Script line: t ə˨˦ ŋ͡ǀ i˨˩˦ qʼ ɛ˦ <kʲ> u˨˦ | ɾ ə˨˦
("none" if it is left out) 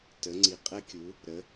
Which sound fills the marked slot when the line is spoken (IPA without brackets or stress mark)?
kʲ